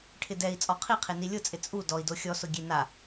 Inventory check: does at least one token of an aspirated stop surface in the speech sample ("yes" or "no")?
yes